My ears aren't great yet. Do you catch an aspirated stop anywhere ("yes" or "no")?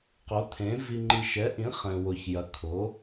yes